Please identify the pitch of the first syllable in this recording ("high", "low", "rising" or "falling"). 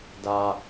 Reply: low